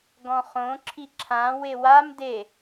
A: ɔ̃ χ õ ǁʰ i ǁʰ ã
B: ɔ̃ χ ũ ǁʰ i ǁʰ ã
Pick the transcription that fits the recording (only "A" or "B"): A